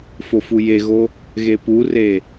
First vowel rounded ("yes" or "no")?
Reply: yes